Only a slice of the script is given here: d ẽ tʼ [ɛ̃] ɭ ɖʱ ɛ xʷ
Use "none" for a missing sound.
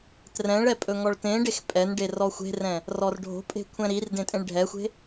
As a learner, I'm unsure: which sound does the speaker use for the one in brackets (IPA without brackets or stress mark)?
ẽ